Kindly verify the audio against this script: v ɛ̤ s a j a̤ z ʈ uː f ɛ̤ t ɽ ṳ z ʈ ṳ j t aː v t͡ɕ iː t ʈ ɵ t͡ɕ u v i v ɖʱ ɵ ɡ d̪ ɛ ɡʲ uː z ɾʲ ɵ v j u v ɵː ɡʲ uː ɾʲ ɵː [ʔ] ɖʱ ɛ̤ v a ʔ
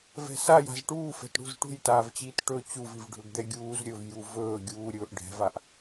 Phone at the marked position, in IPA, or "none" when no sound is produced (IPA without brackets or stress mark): ʔ